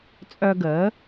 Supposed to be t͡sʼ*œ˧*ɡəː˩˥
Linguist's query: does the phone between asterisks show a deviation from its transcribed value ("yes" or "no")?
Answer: no